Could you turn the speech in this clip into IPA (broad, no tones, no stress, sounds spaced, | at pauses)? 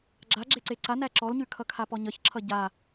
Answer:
ɡ͡ǁ a ɡ͡ǁ e ǀ e ǀ a n æ ǁ ɔ l ɲ ʉ kʰ ʌ kʰ a p ɔ ɲ ʌ ç ǁʰ ʌ ɟ a